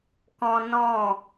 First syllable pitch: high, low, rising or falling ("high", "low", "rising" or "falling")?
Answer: high